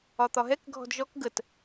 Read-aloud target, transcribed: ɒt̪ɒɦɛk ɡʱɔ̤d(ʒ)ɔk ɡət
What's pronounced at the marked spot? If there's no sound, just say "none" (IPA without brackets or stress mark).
ʒ